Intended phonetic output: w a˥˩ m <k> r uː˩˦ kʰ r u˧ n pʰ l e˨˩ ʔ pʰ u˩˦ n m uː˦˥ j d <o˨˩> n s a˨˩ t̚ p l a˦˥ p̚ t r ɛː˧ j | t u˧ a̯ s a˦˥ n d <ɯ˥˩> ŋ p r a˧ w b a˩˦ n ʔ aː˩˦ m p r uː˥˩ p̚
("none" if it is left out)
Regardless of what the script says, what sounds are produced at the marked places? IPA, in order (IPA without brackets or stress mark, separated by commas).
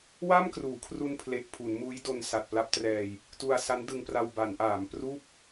k, o˧, ɯ˧